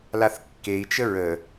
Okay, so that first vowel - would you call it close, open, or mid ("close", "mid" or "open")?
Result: open